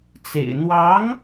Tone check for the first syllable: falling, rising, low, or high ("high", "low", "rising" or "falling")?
low